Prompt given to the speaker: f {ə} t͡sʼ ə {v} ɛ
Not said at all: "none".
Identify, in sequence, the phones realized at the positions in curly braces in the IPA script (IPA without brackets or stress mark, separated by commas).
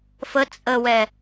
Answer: ə, w